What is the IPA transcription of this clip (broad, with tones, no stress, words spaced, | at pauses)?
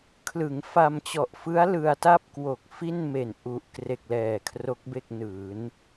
kʰlɯ˩˦ŋfa˧mt͡ɕɔ˨˩ʔfɯ˦˥a̯ lɯ˧a̯ta˥˩p̚kwo˨˩k̚ fi˥˩nme˨˩nʔu˨˩ʔ kre˨˩k̚lɛː˨˩ kʰro˦˥k̚be˥˩k̚nɯː˩˦n